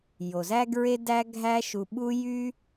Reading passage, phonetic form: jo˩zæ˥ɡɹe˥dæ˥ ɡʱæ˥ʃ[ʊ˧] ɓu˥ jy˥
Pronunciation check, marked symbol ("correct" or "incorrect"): incorrect